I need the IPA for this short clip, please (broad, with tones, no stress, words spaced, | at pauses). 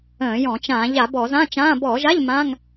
ə̃ː˧˩˧jɔ̃˧˩˧ t͡ʃãː˧˩˧ ʎa˧˩˧bɔ˧˩˧ zã˧˥˧t͡ʃãː˧˥˧ bɔː˧˩˧ʒa˧˥˧ʎ mã˧˥˧ŋ